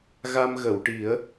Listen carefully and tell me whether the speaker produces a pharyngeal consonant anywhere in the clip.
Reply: no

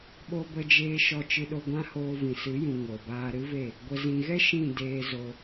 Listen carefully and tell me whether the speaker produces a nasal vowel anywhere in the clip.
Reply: yes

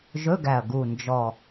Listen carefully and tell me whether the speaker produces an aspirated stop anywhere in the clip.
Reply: no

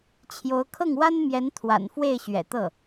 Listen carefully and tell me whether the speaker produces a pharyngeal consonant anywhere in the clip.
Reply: no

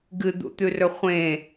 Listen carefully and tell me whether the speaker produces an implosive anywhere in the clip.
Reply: no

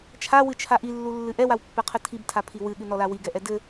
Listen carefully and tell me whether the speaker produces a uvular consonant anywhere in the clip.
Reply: yes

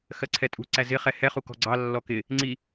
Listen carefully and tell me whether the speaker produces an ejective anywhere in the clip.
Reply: yes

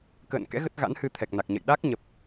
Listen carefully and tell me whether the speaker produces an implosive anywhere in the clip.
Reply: yes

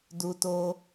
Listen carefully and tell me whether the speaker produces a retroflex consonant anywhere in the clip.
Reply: no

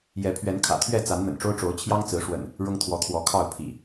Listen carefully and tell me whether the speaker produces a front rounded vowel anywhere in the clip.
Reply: no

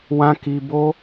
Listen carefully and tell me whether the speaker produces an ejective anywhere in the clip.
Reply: no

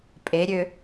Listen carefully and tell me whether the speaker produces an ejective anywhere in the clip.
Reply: yes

